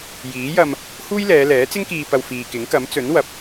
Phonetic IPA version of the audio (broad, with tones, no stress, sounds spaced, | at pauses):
j iː˨˥ j ɐ˧ m | h uː˥ j l ɛː˨˧ l ɛː˨˥ t͡s ɪ˥ ŋ k iː˧ p ɐ˧ w f iː˨ k ɪ˨˥ ŋ k ɐ˨˥ m t͡s ɵ˨˥ n w ɐ˨˥ p̚